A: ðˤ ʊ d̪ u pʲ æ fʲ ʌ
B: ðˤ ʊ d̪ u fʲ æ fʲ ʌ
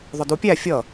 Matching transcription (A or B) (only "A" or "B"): A